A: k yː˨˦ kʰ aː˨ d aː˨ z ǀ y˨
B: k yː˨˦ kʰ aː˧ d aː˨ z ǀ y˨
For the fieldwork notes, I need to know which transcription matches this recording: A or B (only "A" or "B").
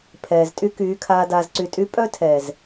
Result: B